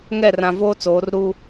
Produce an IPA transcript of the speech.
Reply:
ŋ ɛ˦˨ r ã˨ v o˦ t͡s oː˨˦ r ɾ u˦

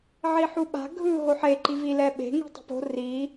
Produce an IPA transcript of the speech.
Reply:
ʕ i ħ u ɓ a̤ ɡʱ ɯ ɦ o ħ e ǃ i v i l ɛ ɓ e̤ ŋ i̤ tˤ i̤ p o̤ r i

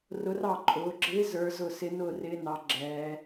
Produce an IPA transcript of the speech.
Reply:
r ʊ˧˥ r ɑ˥˩ ǃʼ ʊː˩˧ ɡ͡ǁ ɪː˧˥ z ə˞˧˥ z ʊ˥˩ s ɪ˧˥ n ʊː˥˩ r ɪː˧˥ n ɑ˩˧ ɡ͡ǁ ɛː˩˧

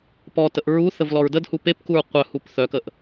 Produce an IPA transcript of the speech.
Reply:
p ɔ t ə ʔ ɹ u θ ə v l ɔ ɹ d ə d h u p e p k u ɹ qʷ œ h u p θ œ k ə ʔ

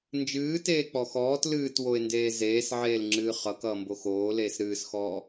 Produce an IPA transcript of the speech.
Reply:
n d͡ʒ ɨː t eː k͡p ɔ x ɔː t l ɨː t w o ɪ̯ n d eː z eː s ʕ eː l ŋ͡ǁ ɨː χ ʌ k ʌː m b o x oː l eː s ɾ ɨː s x ɔː

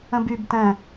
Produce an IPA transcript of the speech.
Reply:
ə̃ b y b t ɛ̃

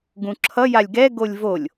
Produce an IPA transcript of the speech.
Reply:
ɡ ũ ǁʰ ʌ j a lʲ ɡ ɛ ɡ o lʲ v o lʲ

